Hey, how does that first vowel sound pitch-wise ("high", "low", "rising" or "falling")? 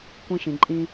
high